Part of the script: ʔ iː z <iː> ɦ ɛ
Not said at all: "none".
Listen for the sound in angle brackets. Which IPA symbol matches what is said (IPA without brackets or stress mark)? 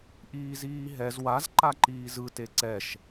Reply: iː